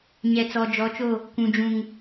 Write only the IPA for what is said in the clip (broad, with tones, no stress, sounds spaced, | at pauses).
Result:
ɲ ɛ˨ t͡s ɔ˨ d͡ʒ ɔ˨˦ t͡ʃ o˦˨ | kʷ ũ˨ d͡ʒ ũ˨ ŋ